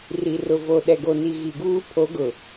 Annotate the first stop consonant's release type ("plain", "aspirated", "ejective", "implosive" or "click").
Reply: implosive